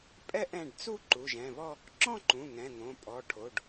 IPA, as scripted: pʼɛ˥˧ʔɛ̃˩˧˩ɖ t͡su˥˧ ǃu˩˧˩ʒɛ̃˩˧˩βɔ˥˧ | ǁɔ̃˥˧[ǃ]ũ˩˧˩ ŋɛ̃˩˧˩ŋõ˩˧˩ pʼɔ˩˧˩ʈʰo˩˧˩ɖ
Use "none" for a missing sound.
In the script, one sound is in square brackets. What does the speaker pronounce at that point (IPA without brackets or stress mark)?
ǃ